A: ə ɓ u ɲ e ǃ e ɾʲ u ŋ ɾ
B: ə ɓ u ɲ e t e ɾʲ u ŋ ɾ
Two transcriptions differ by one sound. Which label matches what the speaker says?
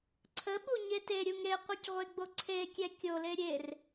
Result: B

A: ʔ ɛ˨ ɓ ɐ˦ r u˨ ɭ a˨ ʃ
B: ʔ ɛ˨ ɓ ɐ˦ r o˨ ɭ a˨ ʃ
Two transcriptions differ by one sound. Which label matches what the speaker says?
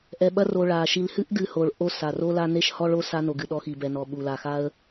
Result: B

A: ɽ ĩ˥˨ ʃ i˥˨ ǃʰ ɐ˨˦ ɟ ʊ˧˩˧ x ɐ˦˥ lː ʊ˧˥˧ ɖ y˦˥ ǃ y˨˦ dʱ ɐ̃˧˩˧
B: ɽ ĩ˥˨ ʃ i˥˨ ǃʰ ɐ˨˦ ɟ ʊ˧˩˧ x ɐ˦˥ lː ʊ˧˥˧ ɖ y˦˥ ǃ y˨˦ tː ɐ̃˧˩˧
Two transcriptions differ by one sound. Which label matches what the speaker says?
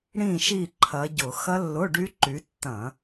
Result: B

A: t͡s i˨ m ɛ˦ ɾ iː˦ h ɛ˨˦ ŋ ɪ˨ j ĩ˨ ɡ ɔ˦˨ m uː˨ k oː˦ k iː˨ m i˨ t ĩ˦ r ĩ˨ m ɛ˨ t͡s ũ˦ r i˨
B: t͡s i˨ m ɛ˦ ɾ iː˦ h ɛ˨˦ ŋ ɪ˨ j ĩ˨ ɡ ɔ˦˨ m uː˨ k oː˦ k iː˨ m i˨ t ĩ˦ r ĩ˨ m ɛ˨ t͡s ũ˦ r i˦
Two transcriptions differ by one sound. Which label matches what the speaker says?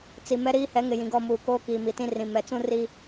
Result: B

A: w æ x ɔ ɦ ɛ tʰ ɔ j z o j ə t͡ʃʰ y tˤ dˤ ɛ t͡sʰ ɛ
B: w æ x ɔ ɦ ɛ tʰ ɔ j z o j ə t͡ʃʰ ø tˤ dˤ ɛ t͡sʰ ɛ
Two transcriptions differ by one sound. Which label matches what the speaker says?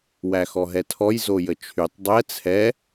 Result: A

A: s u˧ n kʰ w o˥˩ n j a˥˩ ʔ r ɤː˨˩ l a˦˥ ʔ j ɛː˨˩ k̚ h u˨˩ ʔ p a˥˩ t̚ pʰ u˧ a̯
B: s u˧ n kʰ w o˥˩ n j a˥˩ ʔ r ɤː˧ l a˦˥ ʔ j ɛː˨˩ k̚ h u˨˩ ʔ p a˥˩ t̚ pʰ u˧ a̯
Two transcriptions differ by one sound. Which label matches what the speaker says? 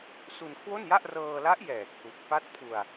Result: B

